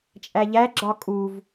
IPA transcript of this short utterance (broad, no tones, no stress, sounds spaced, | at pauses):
t͡ʃʼ æ ʎ æ ɡ͡ǁ ɒ kʼ u v